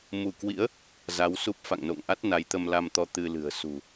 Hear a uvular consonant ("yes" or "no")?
no